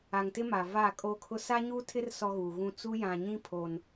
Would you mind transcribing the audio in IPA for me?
a˨ ŋ t ɪ˦ m a˨ v aː˦˨ kʼ o˦ kʰ ʊ˦ s a˦ ɲ uː˦ tʰ ɪ˦ r s ɔ˦ ɣ uː˨ ɣ ũ˦ t͡s u˦ j ã˨ ɲ ĩ˦ pʰ o˨ n

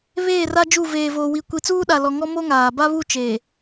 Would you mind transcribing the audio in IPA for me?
β eː˦˨ r a˦ d͡ʒ u˦˨ v eː˨ v oː˨ w i˨ kʷ i˨ t͡s uː˦ ɗ a˨ l ɔ˨ ŋ ɔ˦ m o˦ ŋ aː˨ b a˦ β u˦˨ t͡ʃ eː˨

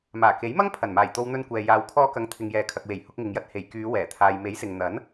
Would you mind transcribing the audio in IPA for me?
m aː˨˩ k e˨˥ j m ɐ˥ ŋ pʰ ɐ˨˩ n m aː˨˩ j t̪ o˧ w n̪ ɵ˧ n kʷ ɛː˨ j aː˨ w kʰ ɔː˧ k ɐ˨˧ ŋ t̪ʰ ɪ˨ ŋ j ɛː˨ kʰ ɐ˨ k̚ w e˨˩ j h ʊ˧ k̚ ŋ ɪ˨ ŋ j ɐ˧ t̚ h e˨˩ j k yː˨˧ w ɛː˨˩ t̪ʰ aː˨ j m e˨˥ j s ɪ˨ ŋ n̪ ɐ˨˥ n

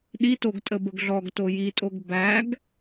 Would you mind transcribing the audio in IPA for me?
ɗ i t o ɡ tʼ ə b ə ɡ ɮ ɔ ɡ t o j i tʼ o ɡ b æ ɡ

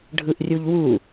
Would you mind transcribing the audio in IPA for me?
ɖʱ ɯ ʔ rʲ u ʎ w u

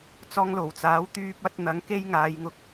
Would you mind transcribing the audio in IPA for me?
t͡s ɔː˧ ŋ l o˨˩ w t͡s aː˨˥ w t̪ yː˧ p̚ ɐ˧ t̚ n̪ ɐ˨˥ ŋ k e˥ j ŋ aː˨˧ j ŋ ʊ˧ k̚

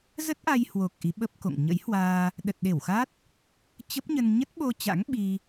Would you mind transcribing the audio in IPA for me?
z ə˦˥ t̚ ʔ a˧ j h w o˨˩ k̚ ʔ i˨˦ ɓ ə˦˥ p̚ k o̰˧˨ ŋ ɲ ə̰˧˥ j h w aː˧ | ɗ ə˨˩ t̚ ɗ e˧˩ w x a˦˥ t̚ | t͡ɕ ə˦˥ p̚ ɲ ə˧ n ɲ ə˦˥ t̚ ɓ o˧ t͡ɕ a̰˧˥ ŋ ɓ i˧

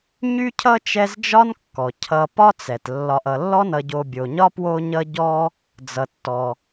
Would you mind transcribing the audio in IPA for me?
ɲ y˥ cʰ ʌ˥ t͡ʃ ɛ˦ z d͡ʒ ɒ˥ n kː ɔ˩ cʰ ʌ˨ p ɒ˥ t͡s ɛ˩ t lː ɒ˨ ʔ ʌ˨ lː ɔ˥ n ʌ˨ ɟ o˨ bʲ o˩ ɲ ɒ˥ p w o˦ ɲ ʌ˦ ɟ ɔ˦ | d͡z ʌ˩ tː ɔ˩

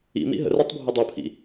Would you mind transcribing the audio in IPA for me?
ḭ m ḭ ɦ ə̰ r æ tˤ bʱ ɵ dˤ u pʰ ḭ

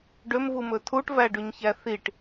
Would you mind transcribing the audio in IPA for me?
ɖ ø m v u m ɵ tʰ u ʈ v æ ɖ ʉ ɲ ç æ θ i ʈ

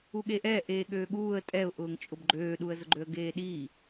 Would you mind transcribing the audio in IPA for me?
u ɠ e ʔ ɛ ʔ eː ɠ øː ɠ uː ə̯ tʼ ɛ ʊ̯ ʔ ʊː ŋ t͡ʃʼ ʊ b ɡ͡ǃ øː ɗ u ə̯ z ʊ ɡ͡ǃ ø ə̯ ɡ eː ɗ i

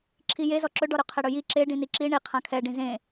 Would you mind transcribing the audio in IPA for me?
ǁʰ i j e z ɔ ǁ ɵ ɖ ɔ ɾ ɵ qʰ ɛ ɽ ɵ j i ǁ e ɖ ĩ n i ǁ i ɳ i qʰ ã kʰ ɛ ɖ ĩ z ẽ

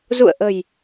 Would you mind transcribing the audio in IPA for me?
z ṵ˧˨ ə̯ ʔ ə̤˨˩ j

